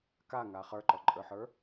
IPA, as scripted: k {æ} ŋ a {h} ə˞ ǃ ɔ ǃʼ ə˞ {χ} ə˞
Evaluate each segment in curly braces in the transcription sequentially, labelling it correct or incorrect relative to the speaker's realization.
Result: incorrect: a, incorrect: χ, incorrect: ħ

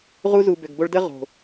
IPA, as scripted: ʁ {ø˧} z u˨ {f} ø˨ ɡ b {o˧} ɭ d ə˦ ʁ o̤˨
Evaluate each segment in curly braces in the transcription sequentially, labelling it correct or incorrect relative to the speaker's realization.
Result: incorrect: u˧, incorrect: b, correct

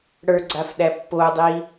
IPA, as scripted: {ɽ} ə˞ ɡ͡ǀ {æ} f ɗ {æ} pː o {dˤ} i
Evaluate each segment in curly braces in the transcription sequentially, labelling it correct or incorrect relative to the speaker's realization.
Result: correct, incorrect: a, correct, correct

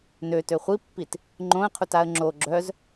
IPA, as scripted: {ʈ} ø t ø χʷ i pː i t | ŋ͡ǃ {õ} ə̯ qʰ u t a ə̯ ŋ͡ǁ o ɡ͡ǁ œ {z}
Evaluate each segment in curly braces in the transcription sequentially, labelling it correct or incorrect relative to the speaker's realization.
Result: incorrect: n, correct, correct

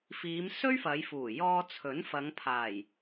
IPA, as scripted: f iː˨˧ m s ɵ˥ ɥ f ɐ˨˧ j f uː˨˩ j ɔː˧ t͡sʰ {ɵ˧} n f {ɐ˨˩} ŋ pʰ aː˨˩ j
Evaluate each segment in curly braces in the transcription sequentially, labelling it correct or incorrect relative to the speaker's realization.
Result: incorrect: ɵ˨˥, incorrect: ɐ˨˧

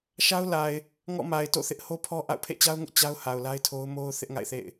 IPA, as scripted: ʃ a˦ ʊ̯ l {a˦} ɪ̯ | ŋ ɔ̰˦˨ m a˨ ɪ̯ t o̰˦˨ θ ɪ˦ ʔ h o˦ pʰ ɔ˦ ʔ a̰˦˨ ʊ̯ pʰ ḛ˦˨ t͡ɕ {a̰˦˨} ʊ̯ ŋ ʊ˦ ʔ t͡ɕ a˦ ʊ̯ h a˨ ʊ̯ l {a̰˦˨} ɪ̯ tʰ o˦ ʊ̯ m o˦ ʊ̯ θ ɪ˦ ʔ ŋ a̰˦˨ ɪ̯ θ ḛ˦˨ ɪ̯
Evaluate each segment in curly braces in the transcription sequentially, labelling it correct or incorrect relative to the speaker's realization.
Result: incorrect: a˨, incorrect: a˦, incorrect: a˦

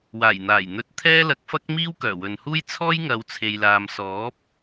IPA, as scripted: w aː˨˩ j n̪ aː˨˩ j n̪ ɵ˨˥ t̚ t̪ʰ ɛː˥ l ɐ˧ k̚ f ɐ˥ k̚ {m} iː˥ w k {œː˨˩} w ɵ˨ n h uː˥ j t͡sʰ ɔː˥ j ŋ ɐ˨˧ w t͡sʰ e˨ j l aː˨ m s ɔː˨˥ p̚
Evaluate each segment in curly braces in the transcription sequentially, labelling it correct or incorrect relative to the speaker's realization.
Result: correct, correct

